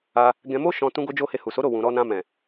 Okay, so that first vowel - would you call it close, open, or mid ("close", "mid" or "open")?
open